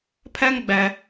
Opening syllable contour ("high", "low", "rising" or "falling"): high